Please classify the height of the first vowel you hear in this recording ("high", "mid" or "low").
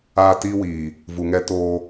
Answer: low